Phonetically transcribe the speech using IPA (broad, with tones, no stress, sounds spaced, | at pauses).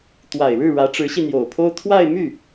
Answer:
t̪ w a˨˩ ɪ̯ ɻ ɻ̩˥˩ ɻ ä˧˥ ʈ͡ʂ ɻ̩˧˥ ɕ i˧ n̪ j o˨˩ ʊ̯ pʰ o˥ ʊ̯ t̪ʰ w a˥˧ ɪ̯ m y˥˩